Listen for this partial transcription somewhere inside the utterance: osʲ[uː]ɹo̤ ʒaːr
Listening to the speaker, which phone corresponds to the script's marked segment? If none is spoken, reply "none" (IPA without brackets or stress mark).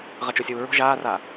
uː